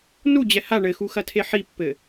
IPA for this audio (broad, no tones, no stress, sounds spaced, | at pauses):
n u d͡ʑ ɛ h a ɳ ɘ x u x ɐ tʰ e ħ i pː ɘ